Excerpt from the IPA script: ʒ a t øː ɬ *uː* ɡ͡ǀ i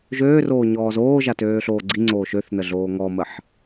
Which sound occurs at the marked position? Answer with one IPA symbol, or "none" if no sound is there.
oː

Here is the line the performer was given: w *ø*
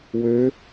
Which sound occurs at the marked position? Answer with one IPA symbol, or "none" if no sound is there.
ø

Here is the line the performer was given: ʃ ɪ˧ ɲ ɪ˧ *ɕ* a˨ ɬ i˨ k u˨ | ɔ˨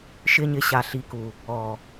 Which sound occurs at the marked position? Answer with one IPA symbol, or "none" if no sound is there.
ɕ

